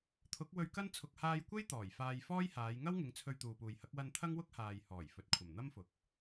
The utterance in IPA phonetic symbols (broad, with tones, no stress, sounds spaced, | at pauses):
t̪ʰ ʊ˨˥ k̚ w ɵ˧ ɥ k ɐ˥ n t͡sʰ ʊ˨ k̚ h aː˧ j kʷ e˥ j t̪ ɔː˨˩ j f aː˧ j f ɔː˥ j h aː˨˧ j ŋ ɐ˥ w ŋ ɪ˨˧ ŋ t͡sʰ ɵ˧ ɥ t̪ uː˨ p uː˨ j h ɐ˨˥ k̚ w ɐ˧ n t̪ʰ ɐ˥ ŋ w ʊ˥ k̚ h aː˨ j h ɔː˨˩ j f ɵ˨ t̚ kʷʰ ɐ˨˩ m n̪ ɐ˥ m f ʊ˨ k̚